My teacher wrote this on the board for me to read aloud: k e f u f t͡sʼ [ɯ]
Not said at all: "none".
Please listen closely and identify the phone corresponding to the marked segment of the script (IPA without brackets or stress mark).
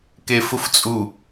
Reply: u